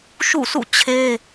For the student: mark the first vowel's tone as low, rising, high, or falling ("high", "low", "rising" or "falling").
falling